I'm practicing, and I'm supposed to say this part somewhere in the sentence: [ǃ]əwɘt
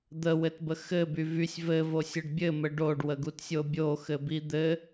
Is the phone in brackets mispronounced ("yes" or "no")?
yes